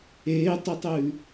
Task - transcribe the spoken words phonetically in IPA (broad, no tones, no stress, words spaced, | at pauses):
eːtˤɵtˤʉː